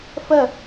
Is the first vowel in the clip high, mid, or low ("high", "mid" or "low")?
mid